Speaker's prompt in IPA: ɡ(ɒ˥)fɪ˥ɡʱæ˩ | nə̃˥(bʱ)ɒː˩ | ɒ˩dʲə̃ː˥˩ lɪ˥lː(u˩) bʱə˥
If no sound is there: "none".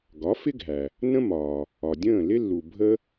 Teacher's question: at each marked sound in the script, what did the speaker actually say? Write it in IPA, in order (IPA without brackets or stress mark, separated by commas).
ɒ˩˥, m, u˩